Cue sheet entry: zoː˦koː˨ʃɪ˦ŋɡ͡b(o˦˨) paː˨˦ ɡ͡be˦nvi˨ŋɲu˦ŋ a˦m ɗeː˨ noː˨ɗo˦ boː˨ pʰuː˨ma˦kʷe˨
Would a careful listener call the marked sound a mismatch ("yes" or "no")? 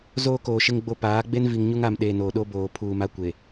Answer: no